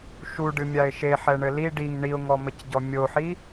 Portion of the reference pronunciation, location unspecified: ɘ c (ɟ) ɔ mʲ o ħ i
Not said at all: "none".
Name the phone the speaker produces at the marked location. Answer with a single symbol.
ɟ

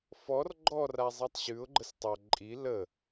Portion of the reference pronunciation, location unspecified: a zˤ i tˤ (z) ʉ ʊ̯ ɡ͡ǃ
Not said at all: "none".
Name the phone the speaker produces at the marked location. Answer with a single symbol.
ɕ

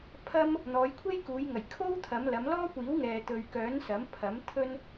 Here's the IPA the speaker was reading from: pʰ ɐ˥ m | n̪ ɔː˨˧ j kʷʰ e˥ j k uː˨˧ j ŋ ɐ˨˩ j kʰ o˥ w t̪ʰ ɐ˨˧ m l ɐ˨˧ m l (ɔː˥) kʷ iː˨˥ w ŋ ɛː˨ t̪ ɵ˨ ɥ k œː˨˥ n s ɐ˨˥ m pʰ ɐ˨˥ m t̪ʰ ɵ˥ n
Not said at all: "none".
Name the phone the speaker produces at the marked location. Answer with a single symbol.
ɔː˥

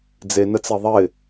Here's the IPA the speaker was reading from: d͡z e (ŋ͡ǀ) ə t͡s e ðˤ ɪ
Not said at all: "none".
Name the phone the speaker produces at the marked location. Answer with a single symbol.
n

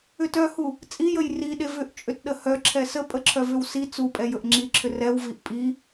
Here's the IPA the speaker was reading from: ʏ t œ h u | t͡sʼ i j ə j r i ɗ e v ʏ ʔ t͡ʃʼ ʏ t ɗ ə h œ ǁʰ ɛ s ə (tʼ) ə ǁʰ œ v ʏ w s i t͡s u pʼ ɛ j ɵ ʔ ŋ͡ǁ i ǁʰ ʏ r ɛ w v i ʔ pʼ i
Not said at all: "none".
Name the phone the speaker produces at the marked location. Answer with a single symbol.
pʼ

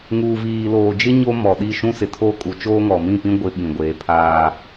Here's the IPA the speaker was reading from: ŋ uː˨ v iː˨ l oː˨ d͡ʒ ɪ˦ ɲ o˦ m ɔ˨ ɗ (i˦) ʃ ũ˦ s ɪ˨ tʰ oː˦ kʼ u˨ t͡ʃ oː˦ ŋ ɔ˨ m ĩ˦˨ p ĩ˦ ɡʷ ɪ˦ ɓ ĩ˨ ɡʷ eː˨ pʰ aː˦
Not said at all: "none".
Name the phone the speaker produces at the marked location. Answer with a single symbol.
i˦˨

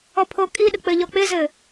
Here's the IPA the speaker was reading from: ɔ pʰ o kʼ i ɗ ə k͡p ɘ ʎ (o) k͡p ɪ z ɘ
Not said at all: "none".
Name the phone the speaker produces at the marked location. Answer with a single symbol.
ɔ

